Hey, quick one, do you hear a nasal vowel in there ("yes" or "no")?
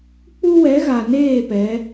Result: no